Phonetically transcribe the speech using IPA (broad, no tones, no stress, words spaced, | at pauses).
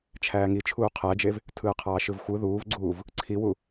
t͡ʃʰæːŋi t͡ʃʰuːqʰæd͡ʒev | tʰɯːqʰɑːʃɯvxʷɯ ðuːvɡ͡ǀuːv | ǀʰiwu